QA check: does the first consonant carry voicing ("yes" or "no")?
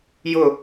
yes